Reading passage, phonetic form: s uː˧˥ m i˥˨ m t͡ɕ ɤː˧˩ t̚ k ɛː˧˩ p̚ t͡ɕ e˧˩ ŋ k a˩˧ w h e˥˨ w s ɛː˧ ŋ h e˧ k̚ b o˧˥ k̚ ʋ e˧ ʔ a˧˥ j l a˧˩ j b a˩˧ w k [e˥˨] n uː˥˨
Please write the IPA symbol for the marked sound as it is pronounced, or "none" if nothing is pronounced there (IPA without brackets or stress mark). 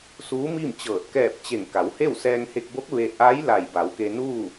e˧